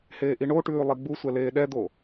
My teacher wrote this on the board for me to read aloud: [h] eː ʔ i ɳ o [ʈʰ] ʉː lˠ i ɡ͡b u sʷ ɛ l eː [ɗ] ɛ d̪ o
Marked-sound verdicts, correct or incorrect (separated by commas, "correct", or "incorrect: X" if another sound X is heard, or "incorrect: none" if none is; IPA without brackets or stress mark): correct, incorrect: ʈ, correct